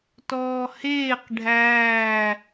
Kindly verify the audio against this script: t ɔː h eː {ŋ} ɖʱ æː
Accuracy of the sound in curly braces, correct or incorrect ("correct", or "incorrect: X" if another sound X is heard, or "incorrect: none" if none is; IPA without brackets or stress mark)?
incorrect: q